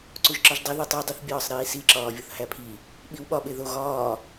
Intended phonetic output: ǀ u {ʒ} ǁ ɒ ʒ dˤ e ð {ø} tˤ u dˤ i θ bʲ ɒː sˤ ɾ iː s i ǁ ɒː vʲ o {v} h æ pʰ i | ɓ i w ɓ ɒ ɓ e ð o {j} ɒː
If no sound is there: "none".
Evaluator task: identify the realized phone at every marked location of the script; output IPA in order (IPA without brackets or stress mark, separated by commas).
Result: ʒ, u, θ, ɣ